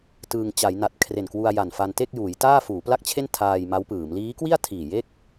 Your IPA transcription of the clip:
t ɯː˧ ŋ t͡ɕ a˩˦ j n a˨˩ t̚ kʰ r e˨˩ n k w u˧ a̯ j a˨˩ n f a˧ n t e˥˩ k̚ j uː˩˦ j t aː˥˩ f uː˩˦ p l a˥˩ k̚ t͡ɕʰ e˥˩ n tʰ aː˧ j m a˦˥ w p ɯː˩˦ m l iː˦˥ k w i˥˩ a̯ tʰ iː˨˩ j e˥˩ k̚

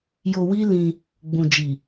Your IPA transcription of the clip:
j o˧ w i˦ l ĩ˧ | ɡ͡b ũ˨ d͡ʒ i˨

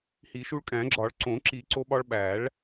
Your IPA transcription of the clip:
h i˨˩˦ ʃ u˧ ɭ kʼ æ̃˨˩˦ ɡ͡ǁ ɒ˨˩˦ ɭ ǀ õ˨˩˦ ǁ i˨˩˦ ǀ o˧ ɓ ɒ˧ ɭ ɓ æ˨˩˦ ɭ

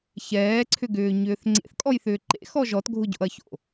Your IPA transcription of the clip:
ç ɛː ǀʰ ʏ ɡ ʏː ɲ ʏː θ ŋ͡ǀ ḛ θ kʼ ɔ j θ ʏː ǃ ḛ x ɔ ʒ ɔ t ɡʱ ʊ ɟ o̰ ɐ̯ ç o̰

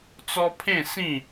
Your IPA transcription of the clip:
t͡s ɔ˦ pʰ ẽ˥˧ s ĩ˥˧

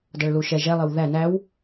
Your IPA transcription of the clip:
d ʌ ɭ l u ʃ ɛ ʒ ɛ lˠ ɪ w ð æ n æ w

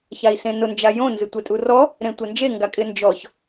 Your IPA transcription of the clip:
ç a i̯ s ẽ n ʊ n d͡ʒ a j õ n z ɪ tʷ e tʼ u r ɔ | ɾ ẽ tʷ ɛ n d͡ʒ e ŋ ɡ a kʼ ɪ n d͡ʒ ɔ ç

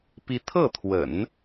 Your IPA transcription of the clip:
p i˧˥ t̪ʰ ɤ˥˩ t̪ʰ w ə̰˨˩˦ n

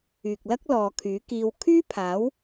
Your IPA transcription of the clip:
yː˨ k̚ l ɐ˥ k̚ l ɔː˨ kʰ yː˨˥ k iː˧ w kʰ yː˥ pʰ aː˨˥ w

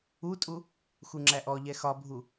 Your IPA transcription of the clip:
u tʼ u | x u ŋ͡ǁ æ ʔ ɔ ʎ ɛ x ɒ bʱ u

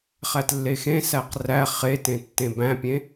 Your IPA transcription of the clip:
χ æ t lː e x ẽ s æ q r æ χ e t ẽ tː ẽ b æ̃ pʲ ẽ

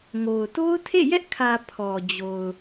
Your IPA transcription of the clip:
ŋ o˨ ʊ̯ t o˦ ʊ̯ tʰ ḛ˦˨ j ɛ˦ ʔ kʰ ä˨ pʰ ɔ˨ d͡ʑ o˨ ʊ̯

